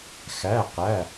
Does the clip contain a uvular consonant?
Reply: yes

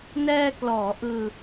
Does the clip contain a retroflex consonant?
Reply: no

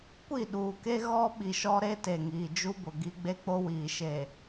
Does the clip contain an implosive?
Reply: yes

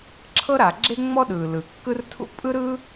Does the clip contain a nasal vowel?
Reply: no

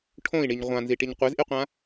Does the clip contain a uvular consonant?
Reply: yes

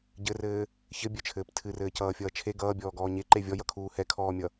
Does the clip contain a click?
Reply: yes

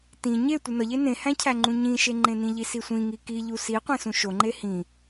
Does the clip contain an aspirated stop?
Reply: yes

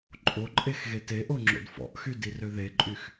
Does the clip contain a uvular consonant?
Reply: no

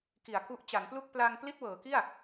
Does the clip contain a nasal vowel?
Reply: no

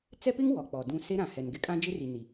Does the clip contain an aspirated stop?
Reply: no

